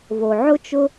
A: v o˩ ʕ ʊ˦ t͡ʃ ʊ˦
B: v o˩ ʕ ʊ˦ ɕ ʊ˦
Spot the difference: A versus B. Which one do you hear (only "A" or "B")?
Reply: A